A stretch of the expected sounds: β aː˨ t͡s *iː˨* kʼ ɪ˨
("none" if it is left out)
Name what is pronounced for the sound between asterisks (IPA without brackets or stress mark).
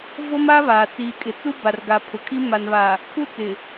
iː˨